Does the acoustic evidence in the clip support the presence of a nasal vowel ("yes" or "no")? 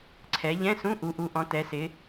yes